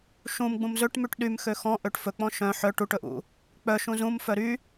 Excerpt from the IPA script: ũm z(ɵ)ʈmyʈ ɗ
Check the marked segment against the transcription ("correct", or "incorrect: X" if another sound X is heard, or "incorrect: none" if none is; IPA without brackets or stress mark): correct